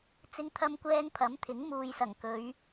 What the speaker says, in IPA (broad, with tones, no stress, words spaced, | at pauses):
t͡sɪ˥ŋt̪ʰɐ˥mkʷɛː˥ŋ pʰɐ˨˥mt̪ʰɪ˨˥ŋmuː˨jsɐ˨˩ŋ kɵ˨˧ɥ